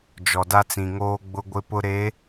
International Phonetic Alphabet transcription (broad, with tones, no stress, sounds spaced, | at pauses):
d͡ʒ ɔ˨ d a˦ t͡s ĩ˨ ŋ oː˦ ɡ͡b ʊ˦ ɡʷ ɪ˦ p ʊ˦ ɾ e˨˦